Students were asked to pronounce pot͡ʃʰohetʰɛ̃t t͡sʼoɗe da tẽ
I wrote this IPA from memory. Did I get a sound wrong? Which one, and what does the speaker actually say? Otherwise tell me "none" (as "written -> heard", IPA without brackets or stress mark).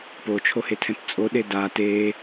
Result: ẽ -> e